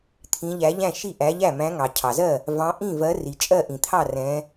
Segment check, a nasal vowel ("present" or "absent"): present